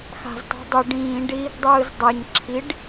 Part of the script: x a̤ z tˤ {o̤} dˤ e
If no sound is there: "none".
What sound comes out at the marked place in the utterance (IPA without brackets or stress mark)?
o̤